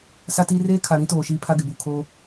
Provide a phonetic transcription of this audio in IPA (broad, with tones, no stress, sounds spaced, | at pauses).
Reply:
s a˦ t iː˦ r eː˦ kʰ a˨ ɾ ĩ˦ t oː˨ ʃ iː˦ pʰ a˦ ɡ ɪ˨ b uː˨ kʰ oː˦